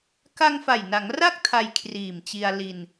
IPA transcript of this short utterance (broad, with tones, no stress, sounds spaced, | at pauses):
k a˧ ŋ f a˨˩ j n a˩˦ ŋ r a˦˥ k̚ tʰ a˧ j kʰ r iː˨˩ m t͡ɕ i˧ a̯ l i˧ n